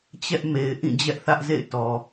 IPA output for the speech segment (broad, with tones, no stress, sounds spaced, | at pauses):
t͡ɕ ɛ˦ ʔ m e˨ ɪ̯ ʔ ĩ˦˨ d͡ʑ ɛ˦ ʔ θ ä˦ ʔ z ḛ˦˨ ɪ̯ t ɔ˨